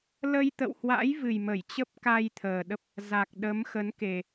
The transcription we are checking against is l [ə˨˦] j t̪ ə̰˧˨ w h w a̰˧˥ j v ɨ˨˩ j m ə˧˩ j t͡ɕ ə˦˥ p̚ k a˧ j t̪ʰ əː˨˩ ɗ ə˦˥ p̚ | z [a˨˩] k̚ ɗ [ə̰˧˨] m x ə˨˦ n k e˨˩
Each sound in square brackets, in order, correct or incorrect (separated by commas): incorrect, correct, incorrect